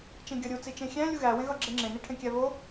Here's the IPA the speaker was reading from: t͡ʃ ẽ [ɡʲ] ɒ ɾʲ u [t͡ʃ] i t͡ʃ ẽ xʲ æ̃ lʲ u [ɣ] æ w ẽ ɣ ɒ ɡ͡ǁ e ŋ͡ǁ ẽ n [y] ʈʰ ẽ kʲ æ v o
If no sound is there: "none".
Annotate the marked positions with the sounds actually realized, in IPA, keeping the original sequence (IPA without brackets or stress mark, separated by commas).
ɡʲ, t͡s, ɣ, i